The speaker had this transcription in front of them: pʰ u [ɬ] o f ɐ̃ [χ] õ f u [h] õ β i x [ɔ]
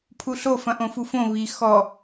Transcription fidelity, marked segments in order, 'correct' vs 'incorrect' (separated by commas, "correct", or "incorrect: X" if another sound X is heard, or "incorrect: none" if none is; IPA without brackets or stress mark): correct, incorrect: ʔ, incorrect: f, correct